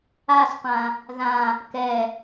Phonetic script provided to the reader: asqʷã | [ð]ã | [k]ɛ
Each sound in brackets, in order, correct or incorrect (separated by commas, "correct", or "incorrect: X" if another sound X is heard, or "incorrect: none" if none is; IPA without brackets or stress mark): correct, correct